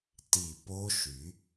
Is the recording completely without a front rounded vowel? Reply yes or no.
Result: no